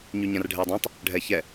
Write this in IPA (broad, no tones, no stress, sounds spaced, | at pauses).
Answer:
ɲ y ɲ ã r ɖʱ ɛ dˤ ã tˤ | ɖʱ ɛ ç ɛ